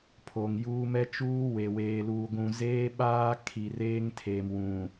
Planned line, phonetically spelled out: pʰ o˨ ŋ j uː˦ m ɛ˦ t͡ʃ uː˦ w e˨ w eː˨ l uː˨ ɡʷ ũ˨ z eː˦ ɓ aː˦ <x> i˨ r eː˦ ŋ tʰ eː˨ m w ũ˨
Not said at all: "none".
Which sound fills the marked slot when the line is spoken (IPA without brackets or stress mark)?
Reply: kʰ